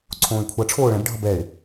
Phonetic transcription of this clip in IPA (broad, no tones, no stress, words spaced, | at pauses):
ǀʰõːɪ̯kʷʰʌ ʈ͡ʂʰoːɭɛ̃b ɖʱʌbɛɪ̯